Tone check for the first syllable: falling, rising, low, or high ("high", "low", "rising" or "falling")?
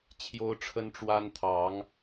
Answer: high